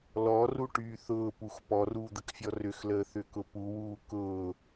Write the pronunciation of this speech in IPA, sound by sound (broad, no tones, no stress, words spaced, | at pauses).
lɔruʈyː θʊːpux pɔruːd̪əkfʲɔ rʏxləːθʏkʊ puwuː kʊː